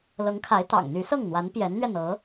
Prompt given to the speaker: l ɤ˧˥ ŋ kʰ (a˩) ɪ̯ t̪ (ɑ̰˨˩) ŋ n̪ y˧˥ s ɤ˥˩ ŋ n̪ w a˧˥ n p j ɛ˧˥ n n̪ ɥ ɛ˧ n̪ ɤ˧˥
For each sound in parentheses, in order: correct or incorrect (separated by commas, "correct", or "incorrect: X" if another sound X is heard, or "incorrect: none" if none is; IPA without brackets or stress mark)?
incorrect: a˧˥, correct